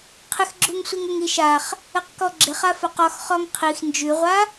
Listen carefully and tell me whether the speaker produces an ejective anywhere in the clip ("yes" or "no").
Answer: no